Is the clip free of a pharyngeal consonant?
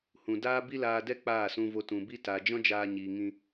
yes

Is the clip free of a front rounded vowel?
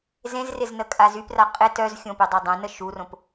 no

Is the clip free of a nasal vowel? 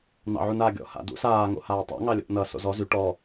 yes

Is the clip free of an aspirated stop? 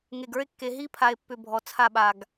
no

